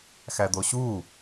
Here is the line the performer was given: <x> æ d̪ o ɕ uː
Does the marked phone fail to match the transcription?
no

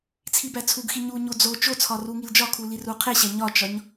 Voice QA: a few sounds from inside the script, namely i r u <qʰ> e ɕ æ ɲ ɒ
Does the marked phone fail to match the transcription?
no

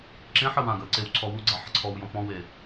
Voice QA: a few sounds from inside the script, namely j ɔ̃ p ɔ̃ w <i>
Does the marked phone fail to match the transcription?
yes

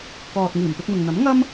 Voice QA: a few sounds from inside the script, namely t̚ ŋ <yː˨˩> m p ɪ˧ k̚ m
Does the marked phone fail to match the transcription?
yes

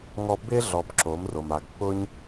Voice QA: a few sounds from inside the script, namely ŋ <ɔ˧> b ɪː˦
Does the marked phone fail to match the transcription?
no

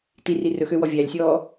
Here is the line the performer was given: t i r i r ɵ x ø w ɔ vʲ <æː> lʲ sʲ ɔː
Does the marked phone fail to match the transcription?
yes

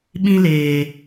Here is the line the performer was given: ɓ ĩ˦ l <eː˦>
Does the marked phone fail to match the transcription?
yes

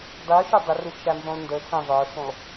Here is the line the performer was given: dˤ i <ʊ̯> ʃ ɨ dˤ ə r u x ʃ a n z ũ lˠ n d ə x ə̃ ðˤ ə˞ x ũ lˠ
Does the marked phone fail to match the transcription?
no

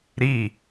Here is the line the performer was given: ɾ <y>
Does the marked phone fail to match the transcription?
yes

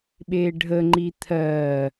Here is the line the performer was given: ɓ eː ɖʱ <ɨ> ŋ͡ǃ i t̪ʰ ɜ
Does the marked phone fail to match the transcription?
yes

